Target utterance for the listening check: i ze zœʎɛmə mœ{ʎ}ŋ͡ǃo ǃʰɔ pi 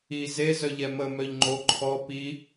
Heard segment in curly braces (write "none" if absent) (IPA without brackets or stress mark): ʎ